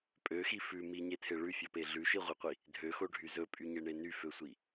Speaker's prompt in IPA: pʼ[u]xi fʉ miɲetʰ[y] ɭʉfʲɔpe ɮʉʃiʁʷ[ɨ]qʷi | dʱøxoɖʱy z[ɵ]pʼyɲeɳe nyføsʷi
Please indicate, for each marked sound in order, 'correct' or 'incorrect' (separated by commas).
incorrect, incorrect, incorrect, correct